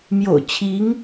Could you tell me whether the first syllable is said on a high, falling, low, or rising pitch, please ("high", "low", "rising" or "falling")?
low